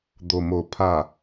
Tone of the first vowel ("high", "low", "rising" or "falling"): low